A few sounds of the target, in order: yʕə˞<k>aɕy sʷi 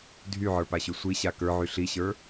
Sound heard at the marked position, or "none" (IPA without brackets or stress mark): p